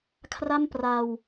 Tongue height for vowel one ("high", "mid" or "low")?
low